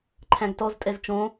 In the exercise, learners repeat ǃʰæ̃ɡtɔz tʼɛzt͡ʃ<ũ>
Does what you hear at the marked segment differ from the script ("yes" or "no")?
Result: yes